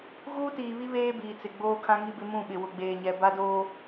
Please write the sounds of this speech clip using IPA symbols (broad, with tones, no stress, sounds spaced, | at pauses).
ɣ uː˦ t iː˨ β i˦ β eː˦ b iː˨ t͡s ɪ˨ ɡ͡b oː˦ kʰ ã˦ ŋ i˦ b ɪ˦ m ũ˦˨ ɓ ɪ˨ w ʊ˨ ɡ͡b eː˨ ɲ ɛ˨ b a˦ d oː˦